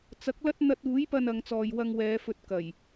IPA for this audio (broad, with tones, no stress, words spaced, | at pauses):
t͡sɐ˨˥k̚lɐ˥t̚ n̪ɐ˧t̚uː˨˥jpɐ˧n ɐ˨˧ŋt͡sɔː˨j wɐ˧ŋ wɛː˨˧fɵ˧t̚kɐ˨˩j